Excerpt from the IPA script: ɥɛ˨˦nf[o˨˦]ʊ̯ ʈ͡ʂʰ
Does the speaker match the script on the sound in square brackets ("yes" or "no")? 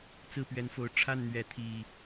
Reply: no